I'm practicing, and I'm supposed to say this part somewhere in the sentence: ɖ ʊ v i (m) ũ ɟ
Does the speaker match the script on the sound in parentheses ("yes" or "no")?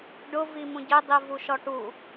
yes